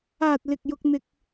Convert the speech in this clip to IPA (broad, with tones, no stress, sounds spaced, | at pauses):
aː˨ t̚ l ɪ˨ k̚ j ʊ˧ k̚ n̪ ɪ˧ k̚